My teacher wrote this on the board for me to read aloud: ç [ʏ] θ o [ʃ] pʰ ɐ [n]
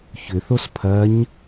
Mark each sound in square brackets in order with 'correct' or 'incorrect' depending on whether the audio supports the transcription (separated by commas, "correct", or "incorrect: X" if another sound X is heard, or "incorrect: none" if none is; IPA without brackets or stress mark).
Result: correct, incorrect: s, incorrect: ɲ